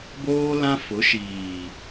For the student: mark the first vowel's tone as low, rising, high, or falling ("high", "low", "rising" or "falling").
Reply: high